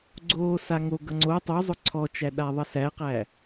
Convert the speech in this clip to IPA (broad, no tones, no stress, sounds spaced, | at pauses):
ɡ͡ǀ oː s a ŋ o ɡ ʌ ŋ͡ǀ o tˤ u zˤ ʊ ǀʰ ɔ t͡ʃ æ ɗ a ðˤ ʌ s æ q æ